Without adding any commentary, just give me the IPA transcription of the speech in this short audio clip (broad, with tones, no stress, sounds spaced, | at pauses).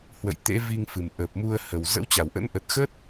h w ə̰˧˨ j t̪ ḛ˧˥ v i˧ ŋ f ɨ˨˩ m ʔ ə˨˩ p̚ m u˧ ə̯ h ə˨˩ w z ə̰˧˥ w t͡ɕ a˧˩ w ʔ ə̰˧˥ n ʔ ə˨˩ t̚ x ə˦˥ t̚